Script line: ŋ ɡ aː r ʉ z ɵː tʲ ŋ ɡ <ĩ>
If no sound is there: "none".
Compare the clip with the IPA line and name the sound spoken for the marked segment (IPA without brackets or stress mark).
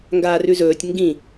ĩ